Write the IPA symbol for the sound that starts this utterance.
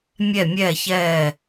mʲ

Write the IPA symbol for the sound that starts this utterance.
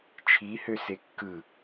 t͡ʃʰ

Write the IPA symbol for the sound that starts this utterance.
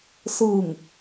s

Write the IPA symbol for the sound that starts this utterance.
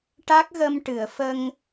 ʈ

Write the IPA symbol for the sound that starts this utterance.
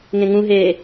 ŋ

